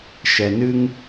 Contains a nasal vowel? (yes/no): no